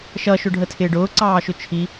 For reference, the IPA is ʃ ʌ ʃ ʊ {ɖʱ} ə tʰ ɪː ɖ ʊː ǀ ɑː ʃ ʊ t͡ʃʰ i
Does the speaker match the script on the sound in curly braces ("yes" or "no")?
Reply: yes